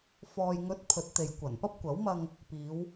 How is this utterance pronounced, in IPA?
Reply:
f ɔː˨ j ŋ ɵ˨˥ t̚ pʰ ɵ˨˥ t̚ t̪ e˨ j kʷ ɐ˨˩ n p ɐ˥ p̚ kʷ ɐ˨˥ w m ɐ˧ ŋ | p iː˨˧ w

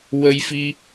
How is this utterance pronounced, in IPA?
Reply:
w ə˧ j f i˧

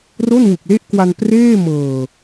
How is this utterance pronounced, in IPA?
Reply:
r o˥˩ n w u˨˩ k̚ l e˥˩ ʔ k w a˧ n p r eː˥˩ m ɤː˨˩

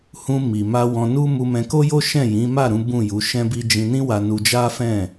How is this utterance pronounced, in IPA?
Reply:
h ũ˧ m i˨ m a˧ w ɔ̃˧ n u˦ m u˧ m ɛ̃˧ k o˦ j o˦ ʃ ɛ̃˦˨ j ĩ˨˦ m a˦˨ ɾ ũ˨˦ b ũ˦˨ j u˨˦ ʃ ɛ̃˦ b i˦ d͡ʒ ĩ˧ n ĩ˦ w a˧ n u˧ d͡ʒ a˦ f ɛ̃˦˨

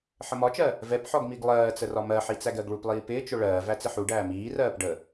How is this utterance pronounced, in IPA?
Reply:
ħ ə m ɒ t͡ʃ ɜ | v ɛ p ħ ɔ ɡ m i ɡ lˠ ɜː t͡s ə r ɒ m ɜ ħ i t͡s æ ɡ ɜ ɡ ɭ u p lˠ iː p ɪː t͡ʃ ʊ ɭ ɜː v æ t͡s ɪ ħ u ɖ æː m iː r ɜː p ɖ ə

